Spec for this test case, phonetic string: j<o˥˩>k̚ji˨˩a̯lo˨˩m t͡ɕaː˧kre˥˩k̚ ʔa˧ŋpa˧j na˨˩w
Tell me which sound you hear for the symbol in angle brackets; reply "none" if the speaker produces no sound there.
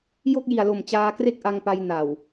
o˥˩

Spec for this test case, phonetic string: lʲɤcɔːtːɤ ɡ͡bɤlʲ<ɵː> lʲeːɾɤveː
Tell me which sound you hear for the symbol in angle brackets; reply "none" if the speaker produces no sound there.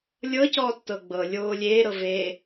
oː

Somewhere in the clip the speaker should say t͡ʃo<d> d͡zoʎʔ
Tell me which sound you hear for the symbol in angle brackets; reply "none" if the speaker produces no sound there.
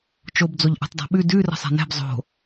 b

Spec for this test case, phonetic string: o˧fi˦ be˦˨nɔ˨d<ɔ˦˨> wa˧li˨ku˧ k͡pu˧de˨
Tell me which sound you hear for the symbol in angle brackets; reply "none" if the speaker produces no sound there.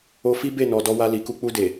ɔ˧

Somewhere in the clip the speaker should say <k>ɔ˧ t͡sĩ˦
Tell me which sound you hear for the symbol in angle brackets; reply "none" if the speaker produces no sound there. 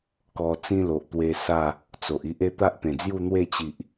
k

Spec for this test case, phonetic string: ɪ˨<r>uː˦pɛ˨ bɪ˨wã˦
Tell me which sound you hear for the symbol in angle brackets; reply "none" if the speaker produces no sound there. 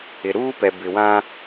ɾ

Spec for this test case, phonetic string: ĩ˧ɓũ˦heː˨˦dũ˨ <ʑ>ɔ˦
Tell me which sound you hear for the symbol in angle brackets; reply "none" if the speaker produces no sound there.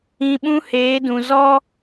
z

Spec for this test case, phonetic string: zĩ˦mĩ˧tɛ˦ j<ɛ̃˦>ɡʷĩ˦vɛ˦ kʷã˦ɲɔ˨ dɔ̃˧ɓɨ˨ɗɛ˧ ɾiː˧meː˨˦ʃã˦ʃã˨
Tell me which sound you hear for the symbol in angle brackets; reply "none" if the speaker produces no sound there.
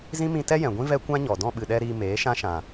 ɛ̃˨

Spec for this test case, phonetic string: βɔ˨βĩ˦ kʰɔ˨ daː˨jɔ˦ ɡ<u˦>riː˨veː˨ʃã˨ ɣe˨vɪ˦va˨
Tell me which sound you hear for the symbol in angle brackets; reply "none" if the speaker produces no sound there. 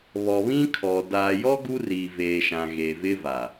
u˦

